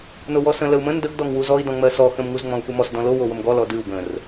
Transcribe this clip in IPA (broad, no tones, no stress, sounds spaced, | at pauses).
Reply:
n o w ɔ s ə̃ l ə u̯ m ə̃ n d ə ɡ d ɔ ŋ w u z ɔ i̯ d ɔ̃ ŋ͡m ɜ s ɔ x ə̃ m ŋ u z ŋ͡m ɔ̃ u̯ f u m ɔ s d ɔ̃ l o w o w ə m ɡ ɔ l ɔ d ɨ u̯ ɡ ə̃ r